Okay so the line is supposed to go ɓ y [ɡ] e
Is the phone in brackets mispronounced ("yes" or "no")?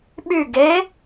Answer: no